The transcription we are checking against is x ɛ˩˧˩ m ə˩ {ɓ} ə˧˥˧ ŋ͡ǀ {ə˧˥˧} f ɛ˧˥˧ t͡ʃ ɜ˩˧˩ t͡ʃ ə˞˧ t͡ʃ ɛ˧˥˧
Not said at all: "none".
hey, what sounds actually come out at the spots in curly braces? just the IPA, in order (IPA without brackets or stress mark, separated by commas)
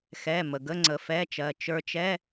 ɡ, ə˩˧˩